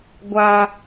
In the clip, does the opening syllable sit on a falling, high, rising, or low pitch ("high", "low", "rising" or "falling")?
high